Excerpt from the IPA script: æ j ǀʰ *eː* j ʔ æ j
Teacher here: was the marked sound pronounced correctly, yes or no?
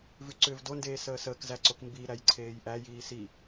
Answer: yes